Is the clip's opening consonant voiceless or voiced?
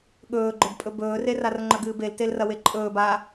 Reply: voiced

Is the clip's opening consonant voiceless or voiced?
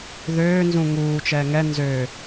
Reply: voiced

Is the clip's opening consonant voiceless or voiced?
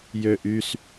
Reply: voiced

